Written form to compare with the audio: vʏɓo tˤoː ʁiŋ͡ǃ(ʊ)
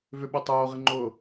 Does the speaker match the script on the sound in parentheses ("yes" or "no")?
no